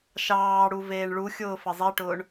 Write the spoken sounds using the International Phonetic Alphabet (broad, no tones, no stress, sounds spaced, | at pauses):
ʃ ɑː ɽ u v eː ɳ ɭ u xʲ ʊː f ə zˤ i ʈ ʊː ɳ